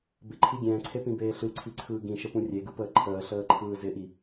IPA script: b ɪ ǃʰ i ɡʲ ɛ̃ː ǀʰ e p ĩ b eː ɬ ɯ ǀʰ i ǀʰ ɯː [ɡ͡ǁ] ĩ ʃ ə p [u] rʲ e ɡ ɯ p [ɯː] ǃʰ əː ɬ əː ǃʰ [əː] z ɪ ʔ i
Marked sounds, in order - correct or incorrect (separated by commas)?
incorrect, incorrect, incorrect, incorrect